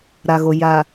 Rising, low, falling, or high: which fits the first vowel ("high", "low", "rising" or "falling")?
low